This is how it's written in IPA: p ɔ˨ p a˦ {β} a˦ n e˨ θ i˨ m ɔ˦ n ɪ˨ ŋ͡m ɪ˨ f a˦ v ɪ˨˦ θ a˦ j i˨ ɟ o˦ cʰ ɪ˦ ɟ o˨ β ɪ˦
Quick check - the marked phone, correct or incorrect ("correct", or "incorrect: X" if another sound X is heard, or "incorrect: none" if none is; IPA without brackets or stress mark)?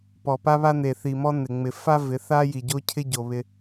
correct